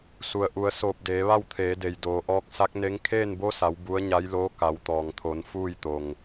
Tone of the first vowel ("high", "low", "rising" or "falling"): low